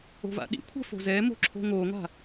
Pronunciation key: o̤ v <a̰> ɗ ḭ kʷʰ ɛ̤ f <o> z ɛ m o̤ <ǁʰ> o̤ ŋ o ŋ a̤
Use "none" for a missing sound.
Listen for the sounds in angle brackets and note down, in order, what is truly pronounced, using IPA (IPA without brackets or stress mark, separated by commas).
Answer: a̰, o̤, ǁʰ